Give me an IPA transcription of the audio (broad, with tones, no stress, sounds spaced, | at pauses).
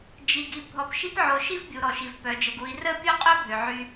d͡ʒ i˨ ɡ i˨ bʱ ɔ˨ p ʃ i˧ p ʕ o˨ ʃ i˦ v bʲ u˨ ɾ ɔ˨ ʃ i˨ v p œ˨ d͡ʒ ə˨ ɡ u˨ i̯ r ə˦ pʲ o˦ qʼ œ˦ bʱ ø˨ ʕ y˧